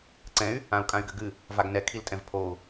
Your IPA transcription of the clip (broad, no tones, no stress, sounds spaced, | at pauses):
ǀ ɛ̃ y̯ | ã u̯ kʼ ã y̯ ɡ ɘ ɡ ɨ | v a ɡ n ɛ kʰ i l tʼ ɛ̃ v pʰ o u̯